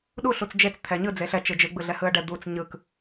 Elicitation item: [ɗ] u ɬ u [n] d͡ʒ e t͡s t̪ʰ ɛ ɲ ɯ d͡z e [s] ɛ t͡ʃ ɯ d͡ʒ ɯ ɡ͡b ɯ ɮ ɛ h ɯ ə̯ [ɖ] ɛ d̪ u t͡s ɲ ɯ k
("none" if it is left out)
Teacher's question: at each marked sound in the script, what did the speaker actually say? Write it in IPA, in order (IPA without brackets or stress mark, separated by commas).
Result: ɗ, t͡s, ɬ, ɖ